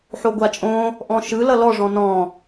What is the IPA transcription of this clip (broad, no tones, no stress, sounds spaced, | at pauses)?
ħ o ɡʷ a t͡ʃʼ õ | ʔ ɔ̃ ʃ ɯ l ʌ l ɔ ʐ ɔ̃ n ɔ̃